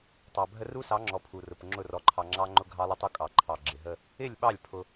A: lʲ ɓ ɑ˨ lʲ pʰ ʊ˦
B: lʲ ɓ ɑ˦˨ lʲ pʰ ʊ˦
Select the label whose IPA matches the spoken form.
B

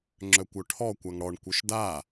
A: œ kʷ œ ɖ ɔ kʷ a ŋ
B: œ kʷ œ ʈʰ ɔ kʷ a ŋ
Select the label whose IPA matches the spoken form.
B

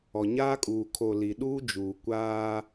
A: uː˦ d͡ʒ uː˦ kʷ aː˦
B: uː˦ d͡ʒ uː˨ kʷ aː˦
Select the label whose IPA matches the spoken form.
B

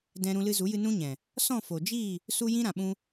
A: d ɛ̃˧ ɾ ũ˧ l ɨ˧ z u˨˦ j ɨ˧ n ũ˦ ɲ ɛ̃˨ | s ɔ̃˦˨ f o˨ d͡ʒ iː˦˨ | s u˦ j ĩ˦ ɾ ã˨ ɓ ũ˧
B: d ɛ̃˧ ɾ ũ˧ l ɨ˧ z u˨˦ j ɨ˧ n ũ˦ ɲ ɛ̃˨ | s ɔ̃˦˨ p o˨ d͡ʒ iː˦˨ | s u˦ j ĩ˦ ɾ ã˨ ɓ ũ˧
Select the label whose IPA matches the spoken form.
A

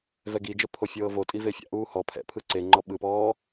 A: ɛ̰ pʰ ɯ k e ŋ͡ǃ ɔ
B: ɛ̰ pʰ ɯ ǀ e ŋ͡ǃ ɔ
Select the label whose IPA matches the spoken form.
B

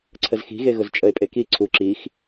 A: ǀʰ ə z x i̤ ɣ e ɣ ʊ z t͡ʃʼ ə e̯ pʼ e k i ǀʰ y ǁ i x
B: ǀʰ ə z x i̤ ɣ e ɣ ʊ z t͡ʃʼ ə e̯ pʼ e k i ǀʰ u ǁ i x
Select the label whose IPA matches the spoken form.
B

